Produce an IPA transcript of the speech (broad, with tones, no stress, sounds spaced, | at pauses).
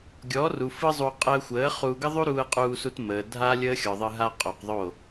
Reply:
ɡʲ ɔː˨˦ r u˨ f ɯ˦ zˤ u˧ qʼ əː˧ xʷ əː˨˦ χ u˧ ɡ ə˦ ðˤ u˦ ɾ uː˧ ə̯ qʼ uː˧ s u˧ t m əː˨ dʱ a˦ lʲ əː˦ xʲ ɔ˨ ðˤ ɯ˧ ɦ a˦ qʼ o˨ q ðˤ o˦˨